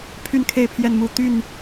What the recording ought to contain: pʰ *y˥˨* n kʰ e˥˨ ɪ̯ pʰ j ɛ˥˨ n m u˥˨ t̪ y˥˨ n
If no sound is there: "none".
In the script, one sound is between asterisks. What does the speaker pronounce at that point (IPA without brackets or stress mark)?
y˥˨